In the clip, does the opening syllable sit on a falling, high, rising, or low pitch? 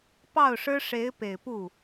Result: falling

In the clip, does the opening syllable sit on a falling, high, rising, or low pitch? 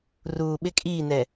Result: low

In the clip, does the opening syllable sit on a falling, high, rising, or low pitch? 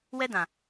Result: high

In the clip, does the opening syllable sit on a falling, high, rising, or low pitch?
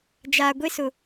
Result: low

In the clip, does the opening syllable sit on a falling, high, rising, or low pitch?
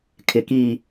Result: low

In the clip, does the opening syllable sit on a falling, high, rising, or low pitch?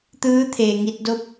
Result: rising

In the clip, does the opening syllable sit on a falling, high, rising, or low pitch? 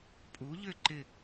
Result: rising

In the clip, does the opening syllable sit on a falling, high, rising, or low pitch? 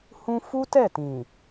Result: high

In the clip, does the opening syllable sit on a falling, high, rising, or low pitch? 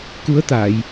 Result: rising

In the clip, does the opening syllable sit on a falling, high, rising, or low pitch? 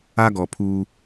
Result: high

